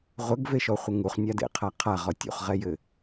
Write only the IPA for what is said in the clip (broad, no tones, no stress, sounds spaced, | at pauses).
ʁʷ ə ɡ v e ʃ ɔ χʷ ə ŋ u χ nʲ a d ḛ qʰ a qʰ a ʁ ɔ tʲ ṵ χ ʁ ɛ j ɘ